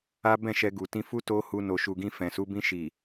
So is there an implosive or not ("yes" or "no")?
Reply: no